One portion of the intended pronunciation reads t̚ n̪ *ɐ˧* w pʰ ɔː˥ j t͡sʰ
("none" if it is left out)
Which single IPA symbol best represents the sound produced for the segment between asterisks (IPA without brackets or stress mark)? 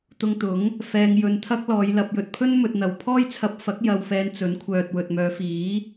ɐ˨